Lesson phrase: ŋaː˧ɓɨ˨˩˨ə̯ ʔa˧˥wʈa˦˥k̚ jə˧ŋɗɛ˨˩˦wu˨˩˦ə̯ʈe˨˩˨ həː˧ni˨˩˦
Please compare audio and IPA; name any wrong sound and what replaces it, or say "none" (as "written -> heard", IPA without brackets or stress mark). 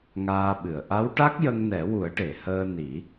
ɗ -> n